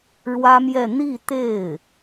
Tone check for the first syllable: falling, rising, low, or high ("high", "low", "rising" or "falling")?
high